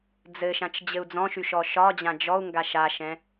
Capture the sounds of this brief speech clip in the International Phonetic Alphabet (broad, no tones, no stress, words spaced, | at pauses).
d͡zɘʃãt͡ʃ d͡ʑɘu̯d͡zɔ̃ʃy ʃɔʃɒd͡ʑã d͡ʒɔu̯ŋɡa ʃaʃɛ̃